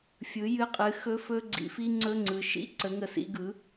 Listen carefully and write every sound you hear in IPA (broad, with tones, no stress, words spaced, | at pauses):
fʲɯ˩˥jɨ˦˥qʼɨ˩˥ xɵ˦˥fɵ˦˥ɡ͡ǀḭ˩˥fi˦˥ ŋ͡ǀɵ˧˥˧ŋ͡ǀɯ˩˧ʃḭ˧˥˧ǀə˩˥ ŋə˨˩sḭ˧˥˧ɡɯ˩˥